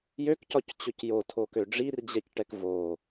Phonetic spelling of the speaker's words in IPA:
jøkcɒct͡ɕʊc jotʰokø ɖ͡ʐird͡ʑɛcʈɛk vo

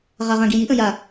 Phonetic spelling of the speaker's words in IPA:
ʁaʁãɡijiʔ ə̃ja

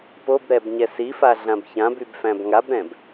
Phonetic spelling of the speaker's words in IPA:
pobɾɛb ɲɛsifa ɮãbçãbyb fæ̃bŋabɾɛ̃b

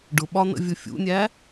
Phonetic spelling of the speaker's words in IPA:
ɖʊɓɒ nə̰vʲʊfʲṵnʲæ

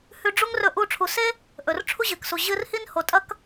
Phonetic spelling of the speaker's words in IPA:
hʉ˧ɖ͡ʐu˥ŋ rɵ˧ ʔu˧ʈ͡ʂʰu˩se˥ | ʔɵ˩rʈ͡ʂʰu˥ʑɨ˩ksu˩ ʑɨ˧r hi˥nho˩tʼɐ˥k

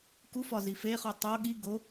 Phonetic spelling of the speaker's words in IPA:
kufɒ zifeχu tˤo ɠi ɡo

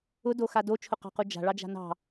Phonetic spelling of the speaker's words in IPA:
ʊdoxa dot͡ʃʰʊqɑ̤qu d͡ʒa̤ɭɑd͡ʒa̤ nɑ̤

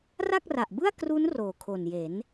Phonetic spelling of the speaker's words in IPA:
ra˥˩k̚ra˨˩ʔbɯ˥˩a̯ kru˦˥n roː˨˩kʰo˨˩nje˩˦n

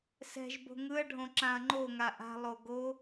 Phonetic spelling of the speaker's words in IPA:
sɛ̤ʒ bo̤ŋɯɐ̯ɖʱõ ǁãɐ̯ŋ͡ǃoŋa ʔa̤lˠo ɡo

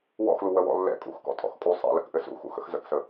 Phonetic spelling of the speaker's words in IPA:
wɔ̰xlu wəwɔ̰lːɛ̰ kʼṵxkɔ̰ tʼɔ̰xkʼu sˤɛ̰lə̰kʔɘ sṵxṵ xə̰xzə̰ksə

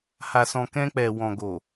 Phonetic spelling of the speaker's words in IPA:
ha˨sɔ̃˨kɛ̃˧k͡pɛ˨ wɔ̃˨ɡo˨

